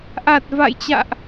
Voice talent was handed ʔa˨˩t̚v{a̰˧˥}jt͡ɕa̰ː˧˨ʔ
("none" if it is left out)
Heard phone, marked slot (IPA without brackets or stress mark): a̰˧˨